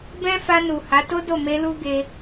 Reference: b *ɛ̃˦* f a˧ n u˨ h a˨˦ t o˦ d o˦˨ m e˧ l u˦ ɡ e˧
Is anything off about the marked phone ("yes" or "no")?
no